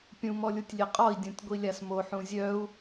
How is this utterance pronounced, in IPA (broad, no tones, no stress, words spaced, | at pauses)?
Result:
pʲũ mɔlʲutʲlʲeqʼɔi̯ dʲõtʲɡʷilʲasmo ħũzʲœu̯